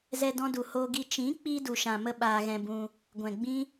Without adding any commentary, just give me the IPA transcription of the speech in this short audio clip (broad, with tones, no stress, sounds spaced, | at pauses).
z ɛ˧ d ɔ̃˧ d u˨ h o˧ ɡ i˧ t͡ʃ ĩ˨˦ k͡p i˧ d u˧ ʃ ã˧ m ə˦ ɓ aː˧ ɣ ɛ̃˧ b ũ˧ | ɡʷ ɛ̃˨ ɡ͡b ĩ˦